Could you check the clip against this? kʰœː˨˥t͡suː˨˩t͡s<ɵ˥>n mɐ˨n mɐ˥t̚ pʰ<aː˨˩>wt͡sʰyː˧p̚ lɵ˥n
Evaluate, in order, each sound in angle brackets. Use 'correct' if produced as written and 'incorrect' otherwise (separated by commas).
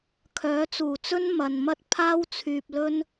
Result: correct, incorrect